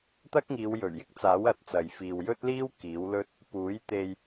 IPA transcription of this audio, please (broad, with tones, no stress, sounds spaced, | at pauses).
t̪ ɐ˥ k̚ ŋ iː˨˧ w j ɵ˨˩ ɥ j ɪ˥ k̚ t͡s aː˨˥ w ɐ˧ t̚ t͡s ɐ˨ j f iː˨ w j ɵ˥ t̚ l iː˥ w k iː˨˥ w l ɵ˥ t̚ | p uː˨˥ j t̪ e˧ j